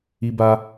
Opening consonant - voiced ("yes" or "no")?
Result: yes